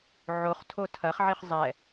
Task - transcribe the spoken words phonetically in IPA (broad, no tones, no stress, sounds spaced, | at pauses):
ʕ o χ tʰ o tʰ ɐ χ ʕ i χ zˤ ɛ